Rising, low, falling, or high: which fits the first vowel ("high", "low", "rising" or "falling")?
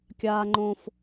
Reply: high